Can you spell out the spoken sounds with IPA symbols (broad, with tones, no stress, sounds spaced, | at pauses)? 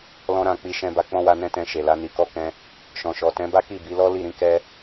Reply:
l ɔ̃˧ ɾ ã˨ k͡p i˧ ʃ ɛ̃˧ b a˧ k͡p ɔ̃˦ w a˧ n ɛ̃˦ t ɛ̃˧ ʃ e˨ l a˧ n i˨ k ɔ˧ k ɛ̃˧ | ʃ ɔ̃˨ ʃ ɔ˨ t ɛ̃˨˦ b a˦ k i˦˨ b i˨˦ l ɔ˦ l i˦˨ ɾ ĩ˨˦ k ɛ˦